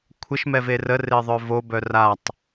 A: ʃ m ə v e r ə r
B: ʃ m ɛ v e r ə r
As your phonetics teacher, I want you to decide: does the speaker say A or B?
B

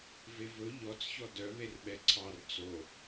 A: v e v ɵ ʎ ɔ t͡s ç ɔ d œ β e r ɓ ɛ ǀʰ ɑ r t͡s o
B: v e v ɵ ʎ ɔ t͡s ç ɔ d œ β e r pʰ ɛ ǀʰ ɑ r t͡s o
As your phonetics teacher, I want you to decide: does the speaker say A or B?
A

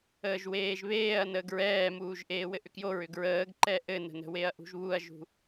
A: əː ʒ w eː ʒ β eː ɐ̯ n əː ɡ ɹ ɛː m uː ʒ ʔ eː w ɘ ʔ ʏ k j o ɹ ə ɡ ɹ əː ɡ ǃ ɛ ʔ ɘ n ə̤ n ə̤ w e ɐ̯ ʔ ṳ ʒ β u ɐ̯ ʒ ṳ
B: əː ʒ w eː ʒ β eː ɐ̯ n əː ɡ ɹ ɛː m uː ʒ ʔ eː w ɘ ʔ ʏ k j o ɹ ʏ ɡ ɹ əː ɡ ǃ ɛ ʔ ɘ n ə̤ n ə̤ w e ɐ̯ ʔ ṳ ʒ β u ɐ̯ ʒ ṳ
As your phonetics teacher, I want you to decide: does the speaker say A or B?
B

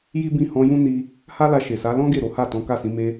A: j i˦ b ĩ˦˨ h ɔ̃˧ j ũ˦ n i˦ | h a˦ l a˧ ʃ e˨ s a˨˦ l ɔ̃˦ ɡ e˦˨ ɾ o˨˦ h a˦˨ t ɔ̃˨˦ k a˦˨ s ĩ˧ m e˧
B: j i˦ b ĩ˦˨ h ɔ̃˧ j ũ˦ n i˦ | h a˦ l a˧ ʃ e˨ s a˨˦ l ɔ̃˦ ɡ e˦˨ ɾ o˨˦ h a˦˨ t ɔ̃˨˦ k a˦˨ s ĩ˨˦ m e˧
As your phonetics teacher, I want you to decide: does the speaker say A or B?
B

